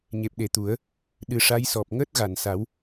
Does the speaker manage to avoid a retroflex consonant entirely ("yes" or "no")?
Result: no